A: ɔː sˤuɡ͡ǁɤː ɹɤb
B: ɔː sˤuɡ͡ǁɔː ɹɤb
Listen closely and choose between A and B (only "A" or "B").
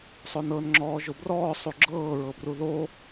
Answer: A